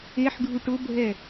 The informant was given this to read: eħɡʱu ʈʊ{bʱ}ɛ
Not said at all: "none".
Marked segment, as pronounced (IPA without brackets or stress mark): bʱ